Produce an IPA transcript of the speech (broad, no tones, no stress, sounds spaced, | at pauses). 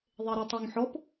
ðˤ e ɾ u tˤ o ŋ ħ ɔ p